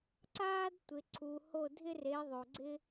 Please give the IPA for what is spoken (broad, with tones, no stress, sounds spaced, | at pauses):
ǀ aː˥ d tʷ ɪ˨ ǀʰ u˨ h o˦˨ dʱ ɪ˥ r e˨˦ ðˤ o˨ ɡ͡ǀ ɪ˥